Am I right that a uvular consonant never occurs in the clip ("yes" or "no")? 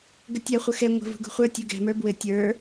no